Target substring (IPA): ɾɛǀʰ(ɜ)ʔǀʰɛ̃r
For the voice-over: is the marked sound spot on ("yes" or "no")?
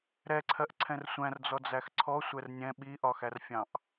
yes